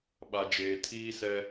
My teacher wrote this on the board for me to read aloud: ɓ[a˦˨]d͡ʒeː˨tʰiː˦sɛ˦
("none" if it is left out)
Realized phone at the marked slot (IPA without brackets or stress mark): a˨